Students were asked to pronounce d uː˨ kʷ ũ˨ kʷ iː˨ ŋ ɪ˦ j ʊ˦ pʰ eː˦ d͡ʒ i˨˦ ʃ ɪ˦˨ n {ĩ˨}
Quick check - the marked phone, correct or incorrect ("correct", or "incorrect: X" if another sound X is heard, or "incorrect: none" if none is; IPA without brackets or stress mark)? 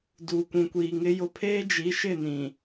correct